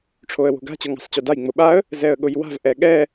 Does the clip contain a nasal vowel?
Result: no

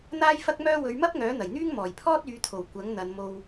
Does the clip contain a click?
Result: no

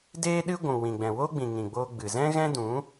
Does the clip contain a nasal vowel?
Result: yes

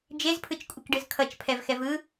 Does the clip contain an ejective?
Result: yes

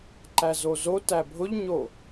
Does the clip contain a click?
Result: yes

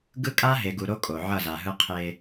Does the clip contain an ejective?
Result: yes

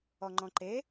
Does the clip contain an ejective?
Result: no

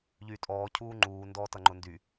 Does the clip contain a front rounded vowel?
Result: yes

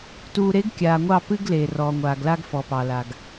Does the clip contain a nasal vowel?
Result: no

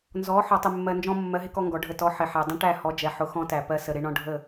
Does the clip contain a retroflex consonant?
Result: yes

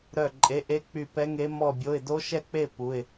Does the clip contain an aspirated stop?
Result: no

